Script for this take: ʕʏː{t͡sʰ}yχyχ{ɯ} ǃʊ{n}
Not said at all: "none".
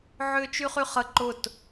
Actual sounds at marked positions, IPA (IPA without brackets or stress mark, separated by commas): t͡ʃ, ə, t